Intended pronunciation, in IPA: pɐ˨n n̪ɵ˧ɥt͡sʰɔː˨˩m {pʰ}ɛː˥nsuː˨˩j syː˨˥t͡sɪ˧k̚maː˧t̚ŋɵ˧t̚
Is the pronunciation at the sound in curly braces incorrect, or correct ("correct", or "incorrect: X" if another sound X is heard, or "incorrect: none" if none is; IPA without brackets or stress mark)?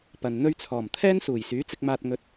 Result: incorrect: t̪ʰ